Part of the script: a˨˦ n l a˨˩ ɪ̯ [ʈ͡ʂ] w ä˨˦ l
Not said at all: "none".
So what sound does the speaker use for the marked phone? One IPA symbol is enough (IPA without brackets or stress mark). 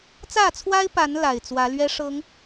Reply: t͡s